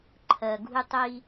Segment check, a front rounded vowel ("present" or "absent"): absent